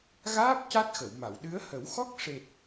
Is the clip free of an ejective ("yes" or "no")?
yes